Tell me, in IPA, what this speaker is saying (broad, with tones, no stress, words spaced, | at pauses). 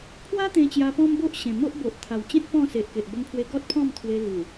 pʰwa˦t̪ẽ˧ t͡ɕja˧pɔ̃˦m bo˦ʔɕẽ˨˩ mo˦ʔbo˨ʔ t̪ʰa˨˩wt͡ɕẽ˦t̚ pɔ̃˥˧se˨ʔke˨ʔ bə˧mpʰwe˧ ɡɔ˦t̚pʰɔ̃˥˧mt̪ʰwe˧ lu˨˩